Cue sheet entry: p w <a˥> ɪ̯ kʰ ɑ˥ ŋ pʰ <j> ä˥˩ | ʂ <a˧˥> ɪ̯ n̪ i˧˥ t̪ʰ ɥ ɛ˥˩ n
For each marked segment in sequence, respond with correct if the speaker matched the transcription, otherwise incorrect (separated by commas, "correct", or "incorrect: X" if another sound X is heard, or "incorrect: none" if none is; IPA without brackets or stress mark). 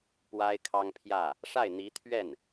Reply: correct, correct, incorrect: a˥˩